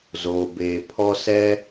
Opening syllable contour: low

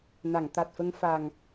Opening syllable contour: low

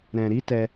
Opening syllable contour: low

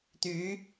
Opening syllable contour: rising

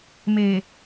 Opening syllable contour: low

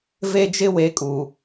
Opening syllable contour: high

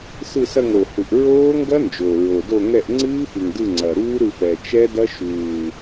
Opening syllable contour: falling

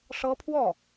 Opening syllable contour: high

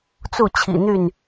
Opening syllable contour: falling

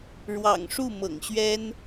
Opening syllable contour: low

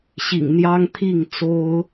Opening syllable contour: low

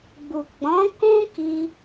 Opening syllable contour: low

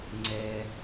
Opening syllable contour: high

